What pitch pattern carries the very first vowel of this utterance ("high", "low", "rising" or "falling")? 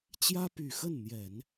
high